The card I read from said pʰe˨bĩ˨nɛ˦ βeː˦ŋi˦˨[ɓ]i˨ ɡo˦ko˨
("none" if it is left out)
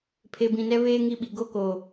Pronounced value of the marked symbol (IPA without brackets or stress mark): ɓ